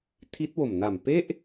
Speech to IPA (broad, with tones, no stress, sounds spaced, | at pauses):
tʰ i˦˥ t̚ w o˨˩ m n a˨˩ m p e˥˩ ʔ